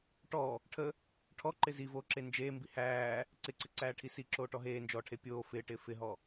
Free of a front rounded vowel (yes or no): yes